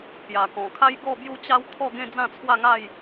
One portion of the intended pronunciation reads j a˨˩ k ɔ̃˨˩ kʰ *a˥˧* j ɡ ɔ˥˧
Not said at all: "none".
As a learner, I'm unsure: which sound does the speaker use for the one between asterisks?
a˦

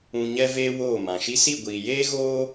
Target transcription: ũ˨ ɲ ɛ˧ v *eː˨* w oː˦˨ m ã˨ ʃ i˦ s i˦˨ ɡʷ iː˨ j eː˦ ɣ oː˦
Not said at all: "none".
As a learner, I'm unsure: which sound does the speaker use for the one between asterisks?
eː˦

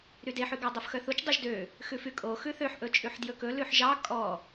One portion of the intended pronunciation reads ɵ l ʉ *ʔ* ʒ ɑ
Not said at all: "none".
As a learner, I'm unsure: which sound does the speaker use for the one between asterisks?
ħ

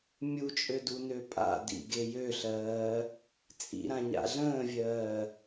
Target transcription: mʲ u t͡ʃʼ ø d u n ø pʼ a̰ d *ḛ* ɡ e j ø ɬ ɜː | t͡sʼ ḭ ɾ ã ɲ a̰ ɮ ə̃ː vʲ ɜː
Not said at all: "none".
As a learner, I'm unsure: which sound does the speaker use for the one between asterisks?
ḭ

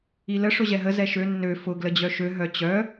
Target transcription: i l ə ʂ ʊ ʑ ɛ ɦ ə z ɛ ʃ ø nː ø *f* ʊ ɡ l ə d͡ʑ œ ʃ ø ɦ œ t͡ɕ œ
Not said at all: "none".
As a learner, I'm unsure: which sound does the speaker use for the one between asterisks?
f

